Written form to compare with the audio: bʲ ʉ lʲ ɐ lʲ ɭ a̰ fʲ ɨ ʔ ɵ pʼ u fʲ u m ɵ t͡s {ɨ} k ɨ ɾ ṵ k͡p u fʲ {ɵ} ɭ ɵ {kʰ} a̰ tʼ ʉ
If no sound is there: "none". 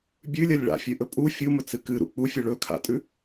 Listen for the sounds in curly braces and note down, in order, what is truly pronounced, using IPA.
ɨ, ɵ, kʰ

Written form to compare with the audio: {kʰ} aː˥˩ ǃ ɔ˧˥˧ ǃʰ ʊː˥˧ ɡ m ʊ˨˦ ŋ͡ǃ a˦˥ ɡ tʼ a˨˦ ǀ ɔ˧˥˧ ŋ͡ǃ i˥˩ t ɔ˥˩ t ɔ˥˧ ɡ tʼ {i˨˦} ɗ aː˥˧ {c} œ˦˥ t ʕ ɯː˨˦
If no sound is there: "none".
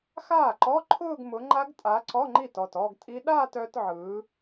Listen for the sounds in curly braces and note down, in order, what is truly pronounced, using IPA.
x, i˦˥, t

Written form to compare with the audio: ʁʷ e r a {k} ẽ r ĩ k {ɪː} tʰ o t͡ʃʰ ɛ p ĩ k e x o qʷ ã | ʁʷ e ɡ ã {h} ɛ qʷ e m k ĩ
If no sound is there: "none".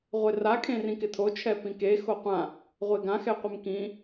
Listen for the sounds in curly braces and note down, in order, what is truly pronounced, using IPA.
kʰ, ɪ, x

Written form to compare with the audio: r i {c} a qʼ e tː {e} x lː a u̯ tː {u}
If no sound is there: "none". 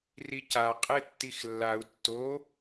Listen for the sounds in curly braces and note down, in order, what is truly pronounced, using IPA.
c, i, o

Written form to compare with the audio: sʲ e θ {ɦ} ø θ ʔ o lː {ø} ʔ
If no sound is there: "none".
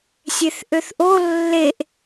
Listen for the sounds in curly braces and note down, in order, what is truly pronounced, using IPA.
ʔ, e

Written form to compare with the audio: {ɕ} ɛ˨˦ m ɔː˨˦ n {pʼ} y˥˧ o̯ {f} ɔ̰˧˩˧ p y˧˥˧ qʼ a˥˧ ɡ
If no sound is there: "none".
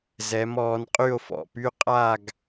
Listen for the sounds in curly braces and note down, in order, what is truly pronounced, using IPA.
z, qʼ, f

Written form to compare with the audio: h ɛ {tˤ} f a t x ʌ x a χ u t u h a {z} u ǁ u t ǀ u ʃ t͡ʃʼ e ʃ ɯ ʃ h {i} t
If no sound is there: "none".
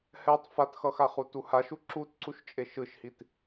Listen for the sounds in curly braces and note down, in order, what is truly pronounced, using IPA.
tˤ, ʃ, i

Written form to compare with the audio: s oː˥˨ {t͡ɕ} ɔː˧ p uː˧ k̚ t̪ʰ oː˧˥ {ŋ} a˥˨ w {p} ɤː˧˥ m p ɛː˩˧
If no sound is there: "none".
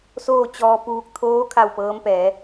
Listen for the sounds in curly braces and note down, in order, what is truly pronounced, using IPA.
t͡ɕ, kʰ, p

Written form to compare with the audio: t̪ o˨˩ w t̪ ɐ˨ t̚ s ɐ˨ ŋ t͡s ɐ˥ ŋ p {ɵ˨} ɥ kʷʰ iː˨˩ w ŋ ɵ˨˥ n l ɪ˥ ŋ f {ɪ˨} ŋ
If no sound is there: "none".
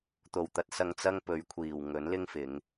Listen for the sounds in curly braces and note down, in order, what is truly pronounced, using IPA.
ɵ˨˧, ɪ˨˧

